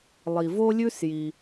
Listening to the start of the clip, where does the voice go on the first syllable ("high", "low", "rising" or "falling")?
low